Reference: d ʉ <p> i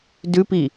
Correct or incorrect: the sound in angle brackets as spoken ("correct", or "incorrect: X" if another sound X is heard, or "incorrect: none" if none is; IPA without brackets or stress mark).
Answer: correct